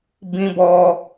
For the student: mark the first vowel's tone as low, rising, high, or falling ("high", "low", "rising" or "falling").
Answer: high